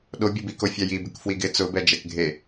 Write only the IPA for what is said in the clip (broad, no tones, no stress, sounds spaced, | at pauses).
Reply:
ɗ o bʲ ʊ b i k o fʲ a j i b ɪ k f w i ɡ ɪ t͡s ʊ b ɛ d͡ʒ ɛ k ɡʱ e